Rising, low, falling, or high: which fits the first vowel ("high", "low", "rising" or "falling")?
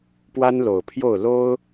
high